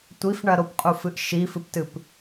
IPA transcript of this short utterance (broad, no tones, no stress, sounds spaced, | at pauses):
tʷ i f ɳ ɐ ɾ o p qʼ u f ɨ ʔ ʃ i f ɨ p t ɨ p